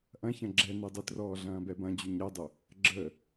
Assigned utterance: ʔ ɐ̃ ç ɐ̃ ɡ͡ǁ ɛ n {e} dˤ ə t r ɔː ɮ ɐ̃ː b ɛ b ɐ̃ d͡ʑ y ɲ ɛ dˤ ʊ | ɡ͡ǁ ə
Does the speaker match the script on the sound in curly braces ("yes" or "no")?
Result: yes